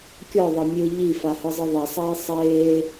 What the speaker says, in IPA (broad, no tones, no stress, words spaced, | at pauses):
kʲɔðˤɤ mʲɯ ʎifa hɯzˤɯðˤɛsˤeː sˤeː